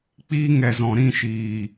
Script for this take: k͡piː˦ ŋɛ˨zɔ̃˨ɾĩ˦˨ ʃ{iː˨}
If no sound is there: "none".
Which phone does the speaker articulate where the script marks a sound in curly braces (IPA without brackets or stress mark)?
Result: iː˨